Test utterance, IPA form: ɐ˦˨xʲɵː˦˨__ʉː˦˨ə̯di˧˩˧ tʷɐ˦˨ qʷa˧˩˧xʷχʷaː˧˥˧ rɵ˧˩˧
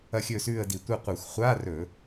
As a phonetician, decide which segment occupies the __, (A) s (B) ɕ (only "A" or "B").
A